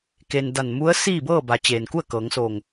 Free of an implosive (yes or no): yes